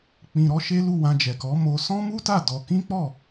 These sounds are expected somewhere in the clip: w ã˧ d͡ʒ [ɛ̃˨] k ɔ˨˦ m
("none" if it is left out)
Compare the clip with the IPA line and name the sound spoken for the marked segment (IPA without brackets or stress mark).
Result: ɛ˨